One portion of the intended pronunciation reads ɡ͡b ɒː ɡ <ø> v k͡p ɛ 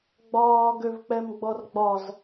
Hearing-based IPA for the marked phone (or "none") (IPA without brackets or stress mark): ø